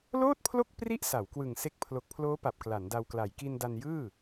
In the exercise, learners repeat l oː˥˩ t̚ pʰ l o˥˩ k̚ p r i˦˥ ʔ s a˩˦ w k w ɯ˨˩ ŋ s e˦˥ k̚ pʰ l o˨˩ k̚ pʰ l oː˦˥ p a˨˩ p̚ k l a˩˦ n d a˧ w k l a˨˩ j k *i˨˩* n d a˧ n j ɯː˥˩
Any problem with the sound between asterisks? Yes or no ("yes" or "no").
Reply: yes